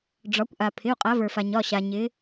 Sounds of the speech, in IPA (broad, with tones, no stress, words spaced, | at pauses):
ɖ͡ʐɒ˩˧kʷʔa˩ pʰɪ˩˧˩u̯qʼa˩˧və˞˩fa˩ ɲɒ˩˧˩ɕa˩ ɲɪ˩˧